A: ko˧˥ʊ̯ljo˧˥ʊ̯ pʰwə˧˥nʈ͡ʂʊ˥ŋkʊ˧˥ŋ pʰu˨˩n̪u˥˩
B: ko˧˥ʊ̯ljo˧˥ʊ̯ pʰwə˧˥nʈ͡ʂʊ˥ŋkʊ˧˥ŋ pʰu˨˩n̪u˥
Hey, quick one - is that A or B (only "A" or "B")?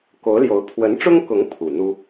B